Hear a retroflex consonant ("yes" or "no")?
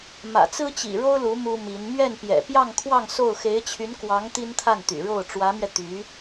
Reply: yes